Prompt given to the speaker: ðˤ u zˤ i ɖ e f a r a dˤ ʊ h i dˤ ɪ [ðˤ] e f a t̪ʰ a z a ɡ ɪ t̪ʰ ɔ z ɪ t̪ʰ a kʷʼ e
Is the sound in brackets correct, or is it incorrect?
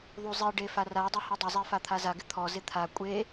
incorrect